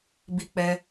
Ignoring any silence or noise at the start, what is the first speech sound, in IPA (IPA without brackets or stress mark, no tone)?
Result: b